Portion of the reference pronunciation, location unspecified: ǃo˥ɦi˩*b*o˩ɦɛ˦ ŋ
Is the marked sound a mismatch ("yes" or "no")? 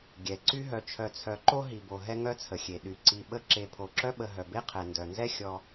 no